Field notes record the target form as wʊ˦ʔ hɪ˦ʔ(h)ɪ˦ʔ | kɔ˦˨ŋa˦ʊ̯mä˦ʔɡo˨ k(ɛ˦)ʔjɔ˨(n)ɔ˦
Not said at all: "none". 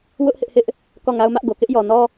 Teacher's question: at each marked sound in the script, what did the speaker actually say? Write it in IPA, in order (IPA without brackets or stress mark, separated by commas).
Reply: h, ɪ˦, n